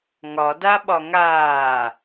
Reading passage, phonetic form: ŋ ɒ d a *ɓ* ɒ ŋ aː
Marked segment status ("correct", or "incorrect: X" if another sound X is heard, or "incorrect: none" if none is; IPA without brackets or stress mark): correct